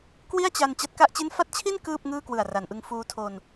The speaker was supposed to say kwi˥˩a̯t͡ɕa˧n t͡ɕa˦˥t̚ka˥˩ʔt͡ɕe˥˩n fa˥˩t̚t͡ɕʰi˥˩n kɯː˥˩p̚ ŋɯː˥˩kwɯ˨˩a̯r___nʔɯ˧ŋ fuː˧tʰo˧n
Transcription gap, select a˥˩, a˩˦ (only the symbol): a˩˦